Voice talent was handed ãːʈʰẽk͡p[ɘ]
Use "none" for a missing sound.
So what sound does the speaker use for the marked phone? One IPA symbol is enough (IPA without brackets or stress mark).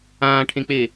e